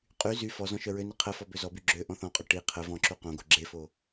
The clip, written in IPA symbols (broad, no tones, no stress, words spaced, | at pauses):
qʼy zy fɔ zɔ̃ʃœɹøni qʰəfɔ bøzɔby ɡ͡ǁø ʔɔ̃θɔ̃qʼø ʈi qʰə vɔ̃ǁu qõɡo ɡ͡ǁefo